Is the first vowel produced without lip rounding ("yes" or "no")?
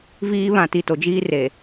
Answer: yes